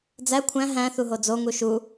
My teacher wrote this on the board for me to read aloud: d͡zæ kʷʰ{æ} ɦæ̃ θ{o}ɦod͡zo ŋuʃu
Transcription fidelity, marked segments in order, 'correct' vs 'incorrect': incorrect: æ̃, incorrect: u

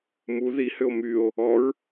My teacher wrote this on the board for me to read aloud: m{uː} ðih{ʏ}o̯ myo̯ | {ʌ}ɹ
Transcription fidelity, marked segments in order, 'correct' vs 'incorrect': incorrect: u, correct, incorrect: ɔ

